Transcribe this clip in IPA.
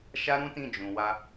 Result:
ʃ a˦ ɾ ũ˦ t ĩ˦˨ d͡ʒ ũ˨ w a˧

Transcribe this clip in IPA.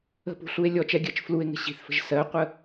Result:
ə̤ p ṳ ɬ u e̯ lʲ ɔ t͡ʃ ɛ ɡʲ ɜ t͡ʃ f l u e̯ ŋ ə̤ ɕ i̤ θ f ə̤ ʒ s ɜ qʷ ə

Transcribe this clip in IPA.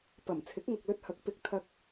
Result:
p ɐ˨˩ m t͡sʰ ɪ˨˥ k̚ ŋ ɐ˨ k̚ l ɵ˧ t̚ h ɐ˨˥ k̚ p ɪ˨ k̚ t̪ʰ ɐ˧ k̚

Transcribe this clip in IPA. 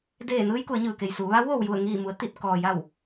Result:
d eː˧˩ n ɯː˧ j k u˩˧ ə̯ ɲ ɯː˩ k e˩ j s uː˩˧ ʋ a˧˥ w ʋ oː˩ w j u˧˩ ə̯ ŋ iː˧˩ m u˩˧ ə̯ t̪ i˧˩ t̚ k ɔː˩ j a˧˩ w

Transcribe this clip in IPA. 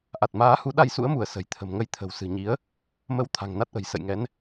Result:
ʔ a˨˩ t̚ m aː˨˦ h u˨˦ ɗ a˧ j s ṵ˧˥ ə̯ m u˧˩ ə̯ s ə̤˨˩ j t̪ʰ ə̤˨˩ m ŋ ə˧ j t̪ʰ ə̤˨˩ w s ɨ̤˨˩ ɲ i˨˦ ə̯ | m ə˨˦ w t̪ʰ a̤˨˩ ŋ n a˦˥ t̚ ʔ ə̤˨˩ j s ə̰˧˨ j ŋ ɛ˨˦ n

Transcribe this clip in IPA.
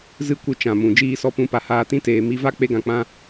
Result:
z ɨ˦ kʷ ɨ˧ t͡ʃ ã˨ m ũ˨ d͡ʒ iː˧ s ɔ˧ p ũ˨˦ p a˨ h aː˧ t ĩ˦ t eː˨ m i˧ v a˦ k͡p e˦ ɡ ã˧ k͡p ã˦

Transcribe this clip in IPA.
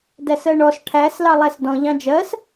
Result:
d æ s ɜ ɳ ɔ s ʈʰ æ s l ɑ lˠ æ s d ɔ̃ ʎ ɑ̃ d͡ʒ ɜ s

